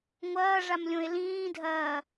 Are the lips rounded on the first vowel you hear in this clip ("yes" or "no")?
no